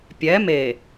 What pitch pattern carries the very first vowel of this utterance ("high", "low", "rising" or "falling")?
rising